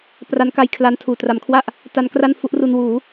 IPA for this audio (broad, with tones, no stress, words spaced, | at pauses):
pra˦˥nka˧jkʰla˧ntʰuː˨˩ tra˩˦mkʰwa˥˩ʔ | ta˦˥nkra˥˩nfu˦˥ʔru˧n wuː˩˦